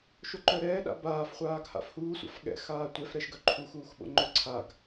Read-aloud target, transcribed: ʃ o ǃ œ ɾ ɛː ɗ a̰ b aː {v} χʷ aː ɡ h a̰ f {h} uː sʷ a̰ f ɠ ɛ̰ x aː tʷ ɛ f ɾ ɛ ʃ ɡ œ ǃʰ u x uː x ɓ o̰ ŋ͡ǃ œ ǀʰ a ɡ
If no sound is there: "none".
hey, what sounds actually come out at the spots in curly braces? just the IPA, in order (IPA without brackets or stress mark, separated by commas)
f, h